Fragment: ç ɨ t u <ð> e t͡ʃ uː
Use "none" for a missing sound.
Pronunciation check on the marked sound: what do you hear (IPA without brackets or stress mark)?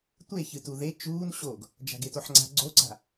ð